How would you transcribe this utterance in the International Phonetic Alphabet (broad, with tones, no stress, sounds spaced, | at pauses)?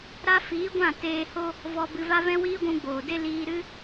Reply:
ɾ a˧ f iː˨˦ ɡʷ ã˦˨ t eː˧ h o˦ | v ɔ˧ b ɨ˧ v a˦ v ɛ̃˦ w iː˦ ɡʷ ũ˧ ɡ͡b oː˨ d e˦ l iː˧ ɾ ɨ˦